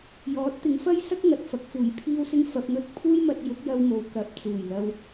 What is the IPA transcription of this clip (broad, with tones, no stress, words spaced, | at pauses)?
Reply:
jɔː˨˥t̚t̪ɪ˨˧ŋfɐ˥j sɐ˥k̚ŋɐ˨t̚fɐ˨k̚ fuː˨˩jpʰiː˧wsɪ˧ŋ fɐ˨p̚ŋɵ˧t̚ pʰuː˥jmɐ˧t̚ jʊ˨˥k̚jɐ˧wmo˨w kɐ˨˥p̚t͡suː˨˩jlɐ˧w